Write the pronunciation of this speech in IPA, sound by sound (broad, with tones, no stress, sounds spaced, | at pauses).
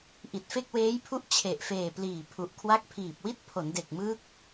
ʔ i˨˩ t̚ f e˥˩ k̚ w eː˦˥ j pʰ u˦˥ ʔ t͡ɕʰ e˨˩ ʔ f eː˨˩ p l iː˨˩ pʰ u˨˩ ʔ kʰ w a˦˥ k̚ pʰ iː˨˩ p̚ w i˥˩ t̚ pʰ o˩˦ n d e˨˩ k̚ m ɯː˦˥ k̚